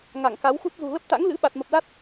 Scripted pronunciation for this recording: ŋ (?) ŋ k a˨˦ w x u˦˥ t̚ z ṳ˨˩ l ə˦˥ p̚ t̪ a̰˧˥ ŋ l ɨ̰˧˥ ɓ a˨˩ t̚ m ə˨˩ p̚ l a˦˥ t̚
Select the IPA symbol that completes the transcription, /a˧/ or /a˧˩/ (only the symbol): a˧˩